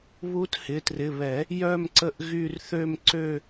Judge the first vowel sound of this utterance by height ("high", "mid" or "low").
high